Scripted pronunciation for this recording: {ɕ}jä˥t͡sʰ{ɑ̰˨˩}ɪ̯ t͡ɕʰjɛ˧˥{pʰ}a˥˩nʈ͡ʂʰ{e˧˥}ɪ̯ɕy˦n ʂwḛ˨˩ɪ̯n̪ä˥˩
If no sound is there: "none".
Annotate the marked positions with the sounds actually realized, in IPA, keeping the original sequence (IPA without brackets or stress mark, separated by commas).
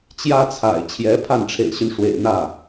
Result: t͡ɕ, a̰˨˩, pʰ, ḛ˨˩